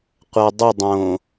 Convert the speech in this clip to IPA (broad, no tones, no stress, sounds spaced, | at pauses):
qʷ a dˤ ʊ dˤ õ